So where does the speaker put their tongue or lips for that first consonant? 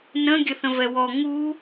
tongue tip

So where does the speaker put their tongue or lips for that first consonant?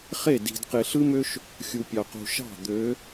uvula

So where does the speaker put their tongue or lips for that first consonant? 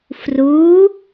lips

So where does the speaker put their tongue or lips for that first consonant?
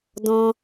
tongue tip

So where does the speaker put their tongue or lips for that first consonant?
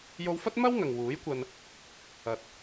palate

